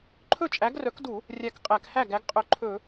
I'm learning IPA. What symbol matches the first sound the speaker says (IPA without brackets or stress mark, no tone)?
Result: ǃʰ